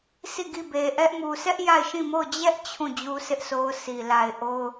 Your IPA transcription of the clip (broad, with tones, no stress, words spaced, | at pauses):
si˦˨ɡi˦˨be˨ʔɛ˦ʔ mu˨sɛ˦ʔ ja˦˨ɪ̯ʃĩ˦˨mo˦˨ʊ̯ d͡ʑɛ˦ʔ t͡ɕʰũ˦˨ d͡ʑu˦sɪ˦ʔ so˦ʊ̯si˨ la˨ɪ̯ ʔo˦ʊ̯